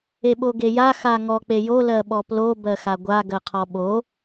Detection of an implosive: present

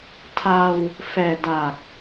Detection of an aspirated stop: present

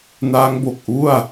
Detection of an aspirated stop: absent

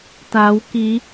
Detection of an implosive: absent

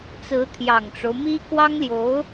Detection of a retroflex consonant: present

